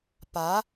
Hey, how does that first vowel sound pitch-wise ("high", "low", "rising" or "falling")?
rising